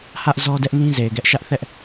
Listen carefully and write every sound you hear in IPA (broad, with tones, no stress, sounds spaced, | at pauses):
h ä˦ ʔ z ɔ˦ d ɛ˦ ʔ n ĩ˦ z e˨ ɪ̯ ɡ ɛ˦ ʔ ʃ ä˦ ʔ θ ɛ˦ ʔ